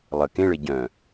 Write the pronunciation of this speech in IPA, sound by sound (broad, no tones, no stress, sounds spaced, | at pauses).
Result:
lˠ ə k ẽ ɭ e ɟ œ̃